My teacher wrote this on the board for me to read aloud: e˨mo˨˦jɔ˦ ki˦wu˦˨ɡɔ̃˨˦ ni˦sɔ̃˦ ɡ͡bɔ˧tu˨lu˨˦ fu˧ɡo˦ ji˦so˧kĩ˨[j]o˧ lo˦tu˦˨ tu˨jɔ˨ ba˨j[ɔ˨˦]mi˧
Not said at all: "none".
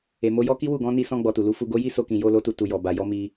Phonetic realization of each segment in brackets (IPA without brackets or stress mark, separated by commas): j, ɔ˨˦